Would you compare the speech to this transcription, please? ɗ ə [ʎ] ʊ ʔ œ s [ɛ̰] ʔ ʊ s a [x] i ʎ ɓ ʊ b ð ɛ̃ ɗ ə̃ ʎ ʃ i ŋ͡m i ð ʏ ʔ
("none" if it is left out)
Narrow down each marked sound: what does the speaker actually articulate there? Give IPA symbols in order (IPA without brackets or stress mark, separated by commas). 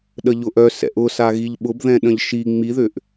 ʎ, ɛ̰, ɣ